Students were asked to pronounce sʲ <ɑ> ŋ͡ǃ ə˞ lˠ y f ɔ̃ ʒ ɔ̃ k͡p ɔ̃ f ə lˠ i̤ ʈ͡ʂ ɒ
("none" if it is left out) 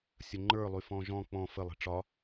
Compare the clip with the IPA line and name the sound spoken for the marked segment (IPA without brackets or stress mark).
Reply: ə